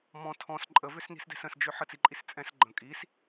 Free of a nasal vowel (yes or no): no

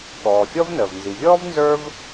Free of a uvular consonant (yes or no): yes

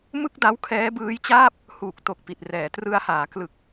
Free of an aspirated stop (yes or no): no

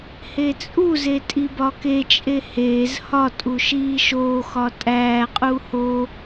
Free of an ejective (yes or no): no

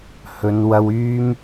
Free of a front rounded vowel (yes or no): no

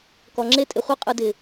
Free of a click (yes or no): no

